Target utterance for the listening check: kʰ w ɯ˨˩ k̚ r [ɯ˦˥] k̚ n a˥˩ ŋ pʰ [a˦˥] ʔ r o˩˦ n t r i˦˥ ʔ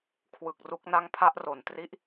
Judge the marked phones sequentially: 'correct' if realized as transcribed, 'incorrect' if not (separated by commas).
incorrect, incorrect